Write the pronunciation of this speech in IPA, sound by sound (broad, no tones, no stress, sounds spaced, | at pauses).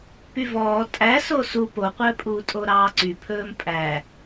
p y v ɔː tʼ æ s o s u p o qʷ œ pʼ uː tʼ o ɾ ɑː ǀ y pʰ ɵː m pʼ æ